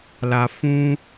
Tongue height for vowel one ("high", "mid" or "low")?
low